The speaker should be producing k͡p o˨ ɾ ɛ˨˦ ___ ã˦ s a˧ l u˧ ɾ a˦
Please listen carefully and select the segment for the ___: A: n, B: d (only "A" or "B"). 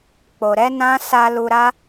A